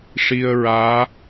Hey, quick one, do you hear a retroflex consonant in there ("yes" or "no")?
yes